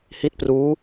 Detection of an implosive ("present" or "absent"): absent